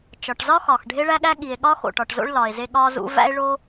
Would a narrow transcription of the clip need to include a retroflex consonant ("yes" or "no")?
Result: yes